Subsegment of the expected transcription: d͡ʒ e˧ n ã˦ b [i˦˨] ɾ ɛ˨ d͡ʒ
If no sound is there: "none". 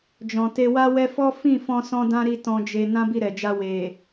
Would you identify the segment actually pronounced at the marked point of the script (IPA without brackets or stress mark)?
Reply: i˦˨